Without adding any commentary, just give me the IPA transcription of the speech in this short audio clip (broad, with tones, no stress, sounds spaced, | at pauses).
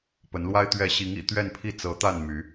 p ə˧˥ n l w a˥ ɪ̯ t̪ ɥ ɛ˥˩ ɕ i˧˥ ŋ ḭ˨˩ t̪ ɥ ɛ˥˧ n pʰ i˥˩ t͡s ɤ˧˥ t̪ a˥˩ n m y˧˥